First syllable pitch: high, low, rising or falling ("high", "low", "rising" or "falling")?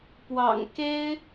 low